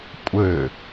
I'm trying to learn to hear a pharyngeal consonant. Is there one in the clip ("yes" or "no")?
no